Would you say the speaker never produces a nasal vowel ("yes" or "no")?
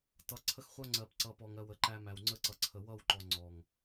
yes